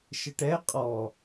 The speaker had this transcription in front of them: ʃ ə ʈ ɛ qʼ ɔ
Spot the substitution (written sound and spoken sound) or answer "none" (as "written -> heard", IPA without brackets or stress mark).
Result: none